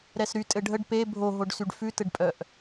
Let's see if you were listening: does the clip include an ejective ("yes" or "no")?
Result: yes